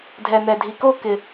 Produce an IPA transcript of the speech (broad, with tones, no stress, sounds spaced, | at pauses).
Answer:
dʱ ɛ˨ n̪ ɛ˨ dʱ i˨ k o˥˧ k ɪ˨